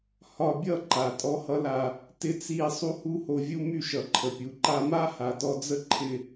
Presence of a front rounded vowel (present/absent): present